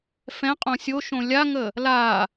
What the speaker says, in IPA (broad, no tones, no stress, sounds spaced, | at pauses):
f ɛ̃ qʼ õ sʲ o ʃ õ lʲ a ŋ ə | l a